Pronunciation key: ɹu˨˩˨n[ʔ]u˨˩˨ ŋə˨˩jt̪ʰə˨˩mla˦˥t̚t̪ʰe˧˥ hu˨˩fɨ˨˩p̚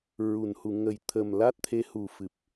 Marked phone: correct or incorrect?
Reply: incorrect